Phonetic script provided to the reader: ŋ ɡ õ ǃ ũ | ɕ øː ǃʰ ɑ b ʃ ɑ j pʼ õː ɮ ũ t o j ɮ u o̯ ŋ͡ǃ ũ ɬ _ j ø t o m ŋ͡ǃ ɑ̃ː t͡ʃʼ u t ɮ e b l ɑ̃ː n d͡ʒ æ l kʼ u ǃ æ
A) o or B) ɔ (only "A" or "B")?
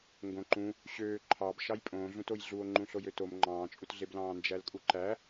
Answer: A